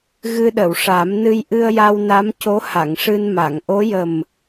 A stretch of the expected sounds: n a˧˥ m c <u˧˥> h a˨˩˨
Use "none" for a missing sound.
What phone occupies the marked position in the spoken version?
o˧˥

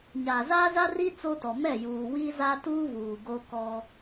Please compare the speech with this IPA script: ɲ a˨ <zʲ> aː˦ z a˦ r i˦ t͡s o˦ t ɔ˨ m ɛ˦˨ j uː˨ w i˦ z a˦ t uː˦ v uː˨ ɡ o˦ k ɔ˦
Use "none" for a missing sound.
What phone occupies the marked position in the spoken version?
z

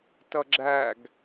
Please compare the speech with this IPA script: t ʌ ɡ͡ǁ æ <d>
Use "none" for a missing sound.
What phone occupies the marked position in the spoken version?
ɡ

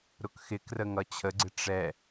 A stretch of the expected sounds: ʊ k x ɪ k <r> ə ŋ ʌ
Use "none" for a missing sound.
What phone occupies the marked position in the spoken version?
r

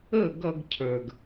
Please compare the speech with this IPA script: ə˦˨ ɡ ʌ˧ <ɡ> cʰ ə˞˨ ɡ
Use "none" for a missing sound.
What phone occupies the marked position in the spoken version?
ɡ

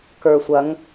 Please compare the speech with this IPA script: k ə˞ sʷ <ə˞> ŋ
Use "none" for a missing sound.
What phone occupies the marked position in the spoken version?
ɐ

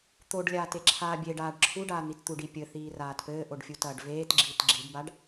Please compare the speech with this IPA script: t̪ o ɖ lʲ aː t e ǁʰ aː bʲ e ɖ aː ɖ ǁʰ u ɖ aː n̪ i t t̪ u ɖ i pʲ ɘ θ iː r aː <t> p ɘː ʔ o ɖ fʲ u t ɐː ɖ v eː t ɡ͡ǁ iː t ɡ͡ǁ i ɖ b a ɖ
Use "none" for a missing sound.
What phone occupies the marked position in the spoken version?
t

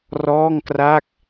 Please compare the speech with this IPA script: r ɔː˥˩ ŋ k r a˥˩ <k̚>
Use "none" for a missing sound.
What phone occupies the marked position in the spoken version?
k̚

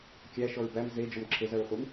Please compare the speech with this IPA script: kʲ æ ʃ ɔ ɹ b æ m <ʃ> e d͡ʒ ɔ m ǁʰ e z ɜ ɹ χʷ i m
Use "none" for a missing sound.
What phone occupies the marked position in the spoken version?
z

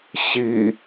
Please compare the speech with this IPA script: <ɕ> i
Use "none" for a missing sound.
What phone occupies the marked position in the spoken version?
ɕ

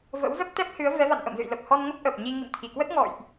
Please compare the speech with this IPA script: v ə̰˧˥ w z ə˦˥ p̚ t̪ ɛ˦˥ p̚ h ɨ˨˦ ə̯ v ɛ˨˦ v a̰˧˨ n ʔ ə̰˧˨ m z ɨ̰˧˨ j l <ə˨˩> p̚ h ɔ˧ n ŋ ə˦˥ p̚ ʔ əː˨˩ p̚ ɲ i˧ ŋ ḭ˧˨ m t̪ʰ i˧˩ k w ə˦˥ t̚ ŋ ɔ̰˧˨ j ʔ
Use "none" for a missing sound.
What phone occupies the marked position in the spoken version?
ə˨˩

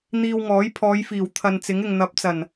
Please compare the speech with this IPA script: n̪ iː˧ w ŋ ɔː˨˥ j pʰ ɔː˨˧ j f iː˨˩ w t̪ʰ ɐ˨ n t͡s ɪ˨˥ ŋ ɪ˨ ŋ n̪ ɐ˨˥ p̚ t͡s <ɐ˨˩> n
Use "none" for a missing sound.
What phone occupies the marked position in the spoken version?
ɐ˨˩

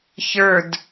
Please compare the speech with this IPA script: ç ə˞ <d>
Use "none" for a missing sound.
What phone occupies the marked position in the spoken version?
d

